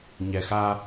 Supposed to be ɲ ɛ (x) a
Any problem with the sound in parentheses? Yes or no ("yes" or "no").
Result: no